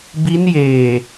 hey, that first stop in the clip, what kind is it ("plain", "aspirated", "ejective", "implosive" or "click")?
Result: plain